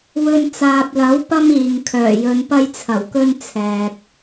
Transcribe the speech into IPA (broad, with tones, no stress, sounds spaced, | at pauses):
w ɵ˧ n t͡s aː˨ p̚ l ɐ˨˥ w p ɐ˥ m iː˨ ŋ kʰ œː˨˩ j ɵ˨˧ n p ɐ˧ j t͡sʰ ɐ˨˩ w k ɵ˧ n t͡sʰ ɛː˨ k̚